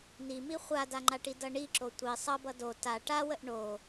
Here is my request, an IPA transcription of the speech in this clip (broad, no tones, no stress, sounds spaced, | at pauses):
n i m i χʷ a d a ŋ͡ǃ a ʈ i d ʌ ɳ i ǁ o tʷ i sˤ ʌ b ʌ d o t a ʈ a w ə ʔ ɳ o